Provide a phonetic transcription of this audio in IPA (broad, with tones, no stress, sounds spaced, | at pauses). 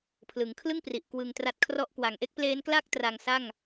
pʰ l ɯ˩˦ ŋ kʰ l ɯ˥˩ ŋ p r i˨˩ ʔ k w ɯ˧ ŋ t r a˦˥ t̚ kʰ r ɔ˥˩ ʔ k w a˨˩ ŋ ʔ e˦˥ k̚ p l eː˦˥ n k l a˥˩ k̚ t r a˧ ŋ s a˥˩ ŋ